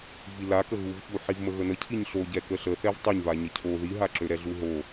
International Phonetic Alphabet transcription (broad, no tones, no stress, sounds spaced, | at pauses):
v i l a k ə ɣ u v ç u ħ i v m ə ɣ ə n ə cʰ i ɲ ɬ o ɟ ɛ k ə ɬ ə θ ɛ v tˤ ø ɲ v a ɲ ə cʰ o ð i ɦ a ǁ ø ɾ ɛ ɮ u ɦ o